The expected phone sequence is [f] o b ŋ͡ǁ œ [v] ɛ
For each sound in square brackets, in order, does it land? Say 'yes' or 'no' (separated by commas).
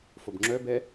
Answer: yes, no